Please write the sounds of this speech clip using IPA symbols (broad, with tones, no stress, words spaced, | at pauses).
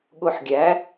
ɠʊ˧ħ ɡʲæ˨˦